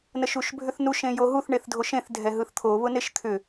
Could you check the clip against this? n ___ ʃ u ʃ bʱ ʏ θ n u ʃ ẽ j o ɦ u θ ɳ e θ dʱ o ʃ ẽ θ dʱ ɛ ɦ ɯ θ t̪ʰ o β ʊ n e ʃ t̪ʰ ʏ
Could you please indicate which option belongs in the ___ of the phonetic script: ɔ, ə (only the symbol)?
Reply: ə